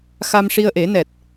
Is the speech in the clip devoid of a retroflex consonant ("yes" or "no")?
no